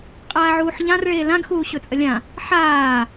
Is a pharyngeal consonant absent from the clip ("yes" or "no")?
no